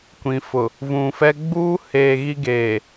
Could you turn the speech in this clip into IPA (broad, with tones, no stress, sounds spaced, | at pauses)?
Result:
kʷ ĩ˨ f ʊ˨ | v ũ˨ f ɛ˦ ɡ͡b uː˦ h eː˨ ɣ i˦ ɡ eː˨